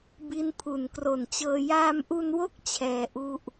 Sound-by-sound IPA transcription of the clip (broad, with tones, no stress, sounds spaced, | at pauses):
b i˦˥ n pʰ u˩˦ n k r o˨˩ n t͡ɕ ɤː˧ j aː˧ m ʔ u˧ n w o˥˩ k̚ t͡ɕʰ ɛː˧ ʔ u˥˩ ʔ